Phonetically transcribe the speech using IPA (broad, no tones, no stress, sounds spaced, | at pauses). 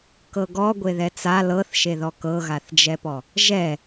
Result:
k ɤ ɡ ɔ ɡʷ e ð ɛ t͡s a l ɤ θ ʃ e ð ɔ k ɤ ɣ a θ d͡ʒ ɛ p ɔ | ʒ ɛ